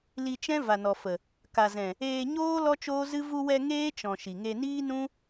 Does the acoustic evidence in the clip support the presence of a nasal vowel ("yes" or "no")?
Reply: yes